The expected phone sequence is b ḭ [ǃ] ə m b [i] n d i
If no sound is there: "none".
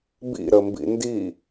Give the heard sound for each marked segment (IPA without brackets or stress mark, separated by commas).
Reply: ɾ, ḭ